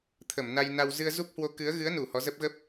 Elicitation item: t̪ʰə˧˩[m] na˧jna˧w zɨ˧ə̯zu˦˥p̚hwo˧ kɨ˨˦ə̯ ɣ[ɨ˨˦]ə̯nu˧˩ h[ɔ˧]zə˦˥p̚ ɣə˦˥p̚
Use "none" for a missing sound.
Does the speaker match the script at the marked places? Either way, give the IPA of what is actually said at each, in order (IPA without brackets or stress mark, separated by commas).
m, ɨ˨˦, ɔ˨˦